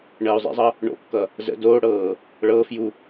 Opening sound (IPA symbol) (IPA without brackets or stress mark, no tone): ɳ